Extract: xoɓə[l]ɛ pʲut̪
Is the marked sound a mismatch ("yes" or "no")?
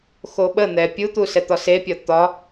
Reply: yes